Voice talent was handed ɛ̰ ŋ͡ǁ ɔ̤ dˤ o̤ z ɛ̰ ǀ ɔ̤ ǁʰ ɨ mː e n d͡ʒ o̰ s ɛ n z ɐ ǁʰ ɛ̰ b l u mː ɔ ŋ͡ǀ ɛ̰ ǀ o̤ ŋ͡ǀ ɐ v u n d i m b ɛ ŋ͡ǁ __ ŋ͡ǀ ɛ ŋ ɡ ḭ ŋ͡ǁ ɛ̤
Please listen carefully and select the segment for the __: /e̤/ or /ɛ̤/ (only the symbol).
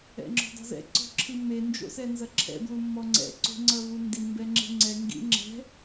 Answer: e̤